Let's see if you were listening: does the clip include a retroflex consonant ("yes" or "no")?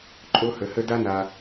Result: no